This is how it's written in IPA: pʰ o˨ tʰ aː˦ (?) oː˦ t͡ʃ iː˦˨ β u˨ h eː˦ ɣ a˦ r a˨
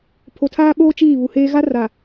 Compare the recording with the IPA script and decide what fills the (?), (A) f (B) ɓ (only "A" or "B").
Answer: B